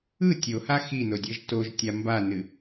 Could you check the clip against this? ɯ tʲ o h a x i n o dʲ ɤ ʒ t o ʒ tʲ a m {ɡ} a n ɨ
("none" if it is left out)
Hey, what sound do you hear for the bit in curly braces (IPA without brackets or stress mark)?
b